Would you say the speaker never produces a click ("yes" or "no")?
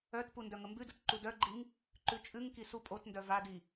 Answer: no